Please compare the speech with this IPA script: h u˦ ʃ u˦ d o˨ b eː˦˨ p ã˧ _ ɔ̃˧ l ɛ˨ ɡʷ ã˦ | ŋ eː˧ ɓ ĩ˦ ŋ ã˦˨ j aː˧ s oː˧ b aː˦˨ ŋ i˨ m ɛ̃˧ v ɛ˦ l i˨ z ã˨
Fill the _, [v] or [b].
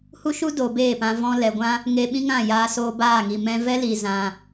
v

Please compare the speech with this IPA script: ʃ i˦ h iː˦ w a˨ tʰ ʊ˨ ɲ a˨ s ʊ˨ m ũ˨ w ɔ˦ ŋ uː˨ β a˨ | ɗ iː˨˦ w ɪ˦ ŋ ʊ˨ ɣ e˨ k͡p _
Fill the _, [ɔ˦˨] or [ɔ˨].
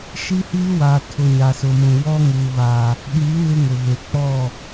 ɔ˦˨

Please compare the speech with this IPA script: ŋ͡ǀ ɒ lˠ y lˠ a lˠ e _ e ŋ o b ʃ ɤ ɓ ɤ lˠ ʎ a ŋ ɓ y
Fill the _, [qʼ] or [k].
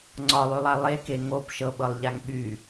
k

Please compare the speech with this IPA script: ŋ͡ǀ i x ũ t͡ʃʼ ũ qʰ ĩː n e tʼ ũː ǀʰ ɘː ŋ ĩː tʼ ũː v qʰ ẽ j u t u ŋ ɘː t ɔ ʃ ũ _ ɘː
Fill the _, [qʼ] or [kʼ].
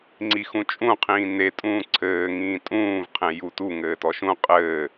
qʼ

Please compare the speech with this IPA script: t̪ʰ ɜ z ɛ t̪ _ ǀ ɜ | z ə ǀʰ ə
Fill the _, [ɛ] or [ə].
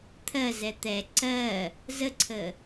ɛ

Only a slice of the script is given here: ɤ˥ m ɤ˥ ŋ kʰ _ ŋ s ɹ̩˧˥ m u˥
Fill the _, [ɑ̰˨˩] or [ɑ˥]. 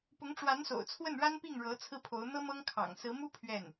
ɑ̰˨˩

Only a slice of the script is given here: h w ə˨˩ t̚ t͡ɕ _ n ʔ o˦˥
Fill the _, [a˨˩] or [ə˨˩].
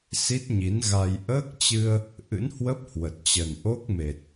ə˨˩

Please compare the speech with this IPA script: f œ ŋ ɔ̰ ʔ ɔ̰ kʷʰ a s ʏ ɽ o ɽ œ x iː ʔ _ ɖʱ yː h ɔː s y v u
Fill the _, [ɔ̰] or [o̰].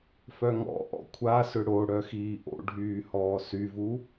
o̰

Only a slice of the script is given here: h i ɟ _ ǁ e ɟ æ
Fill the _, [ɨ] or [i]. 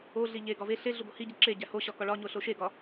i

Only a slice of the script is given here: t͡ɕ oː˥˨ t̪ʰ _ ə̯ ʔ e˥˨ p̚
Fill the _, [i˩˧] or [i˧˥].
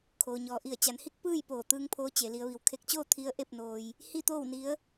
i˧˥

